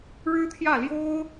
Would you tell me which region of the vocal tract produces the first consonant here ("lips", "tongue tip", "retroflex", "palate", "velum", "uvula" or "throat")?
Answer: retroflex